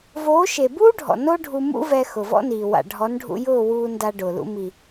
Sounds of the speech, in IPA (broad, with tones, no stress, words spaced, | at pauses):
voː˨˦ʃe˨buː˦ɖʱɔ̰˨ no˦ɖʱu˧ mṵ˦vɛ˧ xʊ˨vɔ̰˦niː˨ wa̰˨ɖʱɔ˨˦nɖʱṵ˧jʊː˦˨ wuː˧nda˧ ɖʊː˨lṵ˧ mi˨